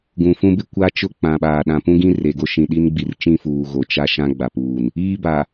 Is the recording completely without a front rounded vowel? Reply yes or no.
yes